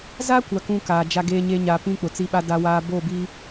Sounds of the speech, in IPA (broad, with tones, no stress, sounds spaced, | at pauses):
z a˦ kʷ a˦ k ũ˦ k aː˨ d͡ʒ a˦ ɡ eː˦ ɲ e˦ ɲ a˨ p ĩ˦ k͡p ʊ˨ t͡s i˦ ɓ a˦ d a˦ w aː˦ b o˦˨ b i˦